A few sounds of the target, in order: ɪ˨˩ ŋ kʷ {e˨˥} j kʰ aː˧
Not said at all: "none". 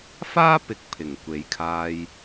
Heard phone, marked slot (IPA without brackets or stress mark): e˨˥